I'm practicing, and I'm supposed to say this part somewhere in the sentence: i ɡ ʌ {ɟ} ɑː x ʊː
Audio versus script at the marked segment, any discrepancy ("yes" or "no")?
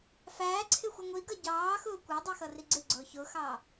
no